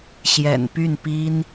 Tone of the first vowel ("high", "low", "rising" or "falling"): low